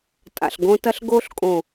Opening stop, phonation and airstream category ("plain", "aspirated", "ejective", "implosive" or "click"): ejective